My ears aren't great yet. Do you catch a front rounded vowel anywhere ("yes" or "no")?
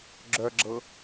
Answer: yes